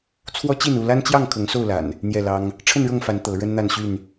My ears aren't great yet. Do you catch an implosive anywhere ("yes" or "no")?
no